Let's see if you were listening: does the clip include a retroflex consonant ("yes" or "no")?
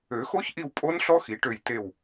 yes